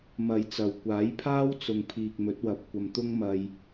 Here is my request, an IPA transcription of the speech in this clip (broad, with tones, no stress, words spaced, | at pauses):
mɐ˧jt͡sɐ˨w kʷaː˨˥jpʰaː˥wt͡sʊ˨ŋ pʰiː˨k̚mɵ˨˥t̚wɐ˨p̚kʷɐ˨m t̪ʊ˥ŋmɐ˧j